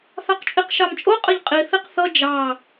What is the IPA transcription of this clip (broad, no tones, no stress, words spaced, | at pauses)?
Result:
θɑqt͡ʃʼiqʃɑmt͡ʃʼo qʼəʎqʼi θiqθʌ d͡ʒɑ